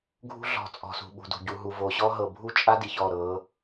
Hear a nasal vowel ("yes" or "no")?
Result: no